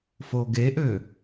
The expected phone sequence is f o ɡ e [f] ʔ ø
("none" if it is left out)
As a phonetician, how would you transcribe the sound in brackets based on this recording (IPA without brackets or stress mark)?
none